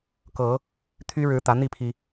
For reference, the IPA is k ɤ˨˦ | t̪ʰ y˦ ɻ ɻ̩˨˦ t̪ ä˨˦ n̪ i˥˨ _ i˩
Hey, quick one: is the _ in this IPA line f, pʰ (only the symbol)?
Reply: pʰ